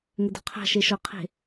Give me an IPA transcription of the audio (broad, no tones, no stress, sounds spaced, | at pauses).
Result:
ŋ ɘ d ɔ̤ qʰ a̤ ʃ e ʃ ɔ qʰ e̤